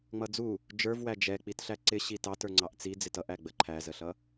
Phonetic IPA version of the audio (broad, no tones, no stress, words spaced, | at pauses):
ŋ͡mʌd͡zu | d͡ʒə˞vwæ d͡ʒɛk͡pit ɬæǀɪ ɕitɑt ə˞ŋ͡ǀɑʔt͡si d͡zɪtʌʔæ ɡ͡bəǃʰæzəɬʌ